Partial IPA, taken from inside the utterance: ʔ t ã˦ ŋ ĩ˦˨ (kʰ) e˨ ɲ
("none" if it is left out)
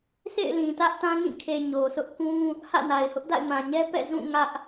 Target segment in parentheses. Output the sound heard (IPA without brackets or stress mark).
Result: kʰ